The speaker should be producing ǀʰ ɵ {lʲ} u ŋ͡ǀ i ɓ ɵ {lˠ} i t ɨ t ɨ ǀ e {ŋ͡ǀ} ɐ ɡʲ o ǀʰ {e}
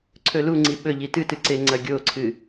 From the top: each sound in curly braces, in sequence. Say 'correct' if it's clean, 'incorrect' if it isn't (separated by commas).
incorrect, incorrect, correct, incorrect